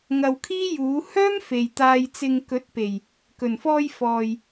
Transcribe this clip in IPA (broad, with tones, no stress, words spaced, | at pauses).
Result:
ŋɐ˨w kʰiː˥ juː˨˥ hœː˥m fe˨jt̪aː˧jt͡sɪ˧ŋ kɵ˨˥t̚pe˨˩j | kɵ˨˩nfɔː˧j fɔː˨j